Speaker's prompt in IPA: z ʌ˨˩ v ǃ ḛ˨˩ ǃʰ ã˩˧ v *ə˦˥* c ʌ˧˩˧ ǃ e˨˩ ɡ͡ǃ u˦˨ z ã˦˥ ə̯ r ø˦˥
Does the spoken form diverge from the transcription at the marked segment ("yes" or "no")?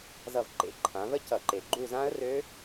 no